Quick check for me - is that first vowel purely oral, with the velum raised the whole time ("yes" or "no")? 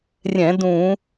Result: no